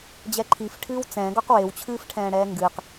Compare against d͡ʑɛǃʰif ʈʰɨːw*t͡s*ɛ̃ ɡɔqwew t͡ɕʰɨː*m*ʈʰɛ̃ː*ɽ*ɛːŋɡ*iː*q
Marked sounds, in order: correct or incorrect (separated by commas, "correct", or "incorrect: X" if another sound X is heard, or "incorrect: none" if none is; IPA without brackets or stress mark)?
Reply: correct, incorrect: f, correct, incorrect: ɨː